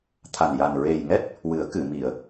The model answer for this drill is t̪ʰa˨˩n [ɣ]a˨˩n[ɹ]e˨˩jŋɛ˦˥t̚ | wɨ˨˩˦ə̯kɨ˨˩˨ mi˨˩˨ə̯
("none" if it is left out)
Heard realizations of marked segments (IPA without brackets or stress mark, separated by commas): j, ɹ